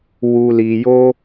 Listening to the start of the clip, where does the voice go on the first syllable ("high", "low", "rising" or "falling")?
low